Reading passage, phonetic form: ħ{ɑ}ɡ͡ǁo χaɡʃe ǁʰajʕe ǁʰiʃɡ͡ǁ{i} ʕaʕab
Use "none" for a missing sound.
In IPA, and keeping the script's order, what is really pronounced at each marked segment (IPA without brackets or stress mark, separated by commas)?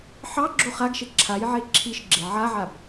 ɑ, e